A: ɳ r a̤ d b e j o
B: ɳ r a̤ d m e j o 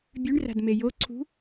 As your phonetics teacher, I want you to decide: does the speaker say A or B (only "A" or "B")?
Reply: B